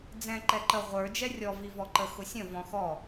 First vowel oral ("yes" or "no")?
no